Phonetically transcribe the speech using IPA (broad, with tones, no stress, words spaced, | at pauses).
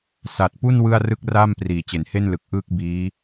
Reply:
sa˨˩t̚ pu˥˩n wɯ˥˩a̯rɯ˥˩k̚raː˥˩m priː˩˦ t͡ɕe˩˦nhe˥˩nlɯ˨˩k̚ ʔɯː˥˩k̚biː˦˥